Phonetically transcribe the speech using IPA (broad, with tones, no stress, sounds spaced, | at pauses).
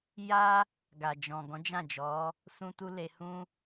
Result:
j a˧ | ɡ a˨ d͡ʒ ɔ̃˨ ɡ ɔ̃˨˦ d͡ʒ ã˦˨ d͡ʒ ɔ˨˦ | s ũ˦ t u˦ l e˧ h ũ˧